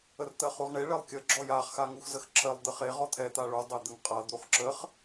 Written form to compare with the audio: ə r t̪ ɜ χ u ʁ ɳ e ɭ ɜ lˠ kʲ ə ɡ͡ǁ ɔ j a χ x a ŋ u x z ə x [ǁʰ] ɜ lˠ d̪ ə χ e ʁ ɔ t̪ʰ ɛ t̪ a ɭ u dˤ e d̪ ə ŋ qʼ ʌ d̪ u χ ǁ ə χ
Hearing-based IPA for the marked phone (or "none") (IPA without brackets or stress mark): ǁʰ